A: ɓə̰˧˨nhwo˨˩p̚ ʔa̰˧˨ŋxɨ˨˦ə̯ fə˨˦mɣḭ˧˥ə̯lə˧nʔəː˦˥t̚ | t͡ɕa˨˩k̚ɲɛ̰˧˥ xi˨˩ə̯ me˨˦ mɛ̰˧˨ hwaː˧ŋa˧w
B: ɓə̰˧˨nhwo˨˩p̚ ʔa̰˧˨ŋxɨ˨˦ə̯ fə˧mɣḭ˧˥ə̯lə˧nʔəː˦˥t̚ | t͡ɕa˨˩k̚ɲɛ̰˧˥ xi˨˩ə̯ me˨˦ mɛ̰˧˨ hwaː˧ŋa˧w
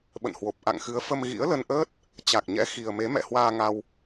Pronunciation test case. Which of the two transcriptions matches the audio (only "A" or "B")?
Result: B